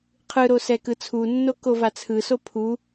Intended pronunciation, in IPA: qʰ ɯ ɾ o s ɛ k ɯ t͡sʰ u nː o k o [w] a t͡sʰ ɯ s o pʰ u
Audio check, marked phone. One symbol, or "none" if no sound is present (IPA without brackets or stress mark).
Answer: v